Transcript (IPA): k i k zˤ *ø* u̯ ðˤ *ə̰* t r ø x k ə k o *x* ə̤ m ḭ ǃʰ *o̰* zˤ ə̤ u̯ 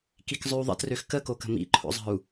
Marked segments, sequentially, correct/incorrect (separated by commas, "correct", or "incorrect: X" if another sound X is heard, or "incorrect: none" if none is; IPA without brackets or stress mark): correct, correct, incorrect: k, correct